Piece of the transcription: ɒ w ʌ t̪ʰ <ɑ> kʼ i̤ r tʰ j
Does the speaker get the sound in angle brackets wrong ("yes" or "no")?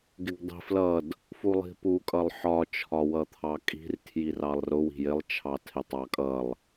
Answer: no